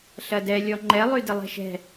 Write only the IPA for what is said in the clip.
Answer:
ɬɐdɛ lʲɔŋ͡ǃɛ lˠydɪlˠɛ̤ʃɛ̤

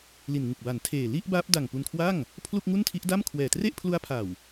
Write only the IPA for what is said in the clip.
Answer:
li˨˩nŋu˨˩k̚ba˩˦n tʰeː˨˩ li˥˩ʔbaː˦˥p̚da˨˩ŋ pu˧nkʰwa˥˩ŋ | pʰlu˥˩k̚ŋu˥˩ntʰi˦˥ʔda˥˩m kʰwɛː˨˩ tre˥˩ʔpʰlu˦˥a̯pʰa˨˩w

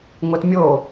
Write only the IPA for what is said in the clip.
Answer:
ŋʷɛtmʲo

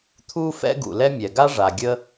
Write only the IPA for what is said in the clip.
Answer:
t̪ʰu˥fɛ̰˥ ɡṵ˩lɛ˥mʲɛ˩ ɡa˥ʐa˩ ɡʲə˥

